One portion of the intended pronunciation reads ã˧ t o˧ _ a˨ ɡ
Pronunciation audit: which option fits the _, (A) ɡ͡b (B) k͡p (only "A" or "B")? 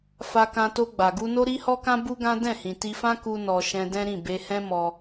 A